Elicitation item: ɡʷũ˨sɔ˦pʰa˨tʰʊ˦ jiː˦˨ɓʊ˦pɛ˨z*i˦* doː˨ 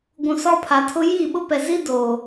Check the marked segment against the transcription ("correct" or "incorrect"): correct